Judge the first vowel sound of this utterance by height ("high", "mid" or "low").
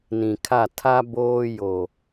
high